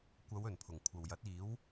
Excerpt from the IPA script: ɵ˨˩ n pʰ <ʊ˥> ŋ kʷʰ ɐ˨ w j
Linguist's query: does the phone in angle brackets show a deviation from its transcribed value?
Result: yes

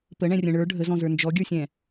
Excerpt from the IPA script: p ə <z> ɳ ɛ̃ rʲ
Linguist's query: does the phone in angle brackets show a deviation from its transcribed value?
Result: yes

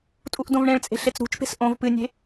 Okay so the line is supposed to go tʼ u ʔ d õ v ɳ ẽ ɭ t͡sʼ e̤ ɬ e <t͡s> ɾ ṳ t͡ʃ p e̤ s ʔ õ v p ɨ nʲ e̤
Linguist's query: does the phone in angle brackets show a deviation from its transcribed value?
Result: no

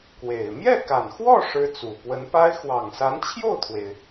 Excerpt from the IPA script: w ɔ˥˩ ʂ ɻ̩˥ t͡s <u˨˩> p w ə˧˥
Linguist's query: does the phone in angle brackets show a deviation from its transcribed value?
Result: no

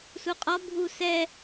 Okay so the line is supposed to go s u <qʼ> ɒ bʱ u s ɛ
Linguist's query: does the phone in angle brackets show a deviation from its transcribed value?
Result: no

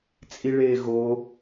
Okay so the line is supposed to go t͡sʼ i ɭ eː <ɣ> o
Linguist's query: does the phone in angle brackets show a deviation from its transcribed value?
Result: no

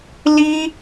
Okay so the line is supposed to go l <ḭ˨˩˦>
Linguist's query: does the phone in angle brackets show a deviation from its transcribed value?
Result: yes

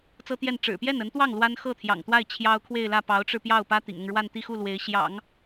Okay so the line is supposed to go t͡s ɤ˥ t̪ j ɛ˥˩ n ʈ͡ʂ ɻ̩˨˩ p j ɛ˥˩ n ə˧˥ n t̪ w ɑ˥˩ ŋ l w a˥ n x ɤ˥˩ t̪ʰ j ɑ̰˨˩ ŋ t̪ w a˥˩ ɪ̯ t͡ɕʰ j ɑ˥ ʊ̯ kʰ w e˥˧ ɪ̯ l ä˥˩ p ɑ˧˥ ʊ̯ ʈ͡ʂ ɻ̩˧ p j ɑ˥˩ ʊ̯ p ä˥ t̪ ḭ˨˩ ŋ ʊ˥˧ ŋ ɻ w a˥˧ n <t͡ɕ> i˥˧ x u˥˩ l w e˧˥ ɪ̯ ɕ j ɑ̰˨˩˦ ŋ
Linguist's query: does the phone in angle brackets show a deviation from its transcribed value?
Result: yes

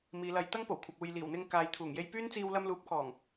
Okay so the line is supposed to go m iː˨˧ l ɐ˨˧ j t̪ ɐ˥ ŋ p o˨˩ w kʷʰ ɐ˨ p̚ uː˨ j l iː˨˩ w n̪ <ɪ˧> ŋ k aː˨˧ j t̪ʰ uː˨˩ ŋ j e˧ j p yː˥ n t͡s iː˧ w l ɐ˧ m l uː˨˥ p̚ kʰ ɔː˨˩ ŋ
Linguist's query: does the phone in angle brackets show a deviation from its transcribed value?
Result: no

